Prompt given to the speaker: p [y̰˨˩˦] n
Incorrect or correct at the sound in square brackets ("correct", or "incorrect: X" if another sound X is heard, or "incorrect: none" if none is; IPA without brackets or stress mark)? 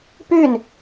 incorrect: y˥˩